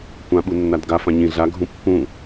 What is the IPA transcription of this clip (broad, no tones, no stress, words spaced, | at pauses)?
kʷã ɓunːadɡa fãɲĩ ɮaɡʱũ pːũ